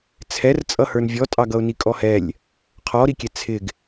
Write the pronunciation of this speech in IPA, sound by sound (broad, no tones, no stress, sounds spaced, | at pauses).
t͡sʰ ɛ r t͡sʼ ʌ h ə˞ n vʲ ɔ tʼ ɑ ɡ ʌ ʊ̯ n i kʼ ɔ h ɛ lʲ | qʰ ɔ ɾ i kʲ ɛ t͡sʰ ɪ ɡ